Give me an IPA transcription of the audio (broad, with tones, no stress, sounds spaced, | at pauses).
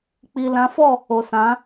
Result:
k͡p i˨ l ã˨˦ f ɔ˦˨ | o˨ s ã˨˦